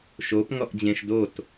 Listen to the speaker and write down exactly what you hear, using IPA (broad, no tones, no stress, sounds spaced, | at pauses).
ʃ o p ŋ ɔ ʔ d͡ʑ ẽ ʃ d o t